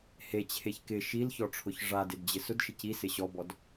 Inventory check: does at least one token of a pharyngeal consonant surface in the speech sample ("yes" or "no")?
no